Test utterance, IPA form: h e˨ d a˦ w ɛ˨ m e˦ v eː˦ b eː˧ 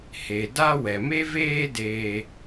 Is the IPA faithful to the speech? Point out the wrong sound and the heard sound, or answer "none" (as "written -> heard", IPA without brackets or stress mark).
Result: b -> d